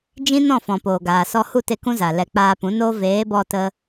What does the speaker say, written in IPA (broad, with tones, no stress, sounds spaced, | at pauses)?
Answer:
d͡ʒ ĩ˦ n ɔ̃˦˨ f ɔ̃˨ p oː˨ ɡ aː˨ s ɔ˧ h u˦˨ t e˦ k ũ˦ z a˨ l ɛ˧ k͡p aː˧ p ũ˨˦ n oː˦ v eː˨˦ b ɔ˧ t ə˧